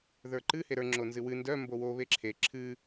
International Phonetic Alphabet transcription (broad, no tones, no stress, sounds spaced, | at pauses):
ð ə˞ ǃ ɨ h e ɾ ə˞ ŋ͡ǁ o n z ɨ w ɨ n d œ m b o w o β e ǁʰ e ǁʰ ɨ